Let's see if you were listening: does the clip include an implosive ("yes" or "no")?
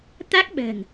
yes